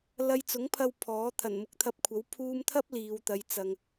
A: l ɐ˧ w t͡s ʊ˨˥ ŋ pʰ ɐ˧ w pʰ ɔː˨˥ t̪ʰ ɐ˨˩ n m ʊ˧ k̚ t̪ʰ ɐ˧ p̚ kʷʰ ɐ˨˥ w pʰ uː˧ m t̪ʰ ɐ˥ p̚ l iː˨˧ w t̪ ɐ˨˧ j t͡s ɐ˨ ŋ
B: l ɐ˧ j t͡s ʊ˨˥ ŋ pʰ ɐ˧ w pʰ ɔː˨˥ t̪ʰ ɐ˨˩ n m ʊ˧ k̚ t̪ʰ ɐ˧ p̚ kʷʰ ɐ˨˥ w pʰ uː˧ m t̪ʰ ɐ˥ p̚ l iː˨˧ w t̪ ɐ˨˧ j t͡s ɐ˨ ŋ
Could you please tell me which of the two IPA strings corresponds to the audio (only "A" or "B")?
B